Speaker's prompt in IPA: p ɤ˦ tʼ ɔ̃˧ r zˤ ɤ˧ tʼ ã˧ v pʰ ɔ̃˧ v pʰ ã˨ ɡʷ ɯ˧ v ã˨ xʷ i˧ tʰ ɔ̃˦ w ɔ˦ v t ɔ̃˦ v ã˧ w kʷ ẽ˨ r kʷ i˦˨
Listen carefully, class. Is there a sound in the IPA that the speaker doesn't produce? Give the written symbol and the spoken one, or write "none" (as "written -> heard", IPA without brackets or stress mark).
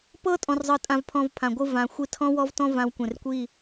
none